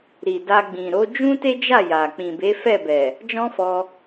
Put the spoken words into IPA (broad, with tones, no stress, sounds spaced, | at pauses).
ɾ i˨ d a˧ ɡ͡b ĩ˨ ɾ o˨˦ d͡ʒ ũ˦ t e˦ d͡ʒ a˦˨ j a˨ k͡p ĩ˨ b e˨˦ f ɛ˦˨ b ɛ˨ | d͡ʒ ɔ̃˦ f ɔ˧